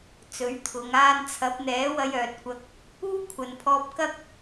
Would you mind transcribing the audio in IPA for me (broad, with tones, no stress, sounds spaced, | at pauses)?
t͡s ɵ˨˥ ɥ t̪ʰ ʊ˨˧ ŋ aː˧ n t͡sʰ ɐ˨˥ p̚ n̪ ɛː˨˥ w ɐ˧ j œː˨ t̚ kʷ ɐ˧ k̚ | uː˥ kʷʰ ɐ˨ n pʰ ɔː˧ p̚ k ɐ˥ k̚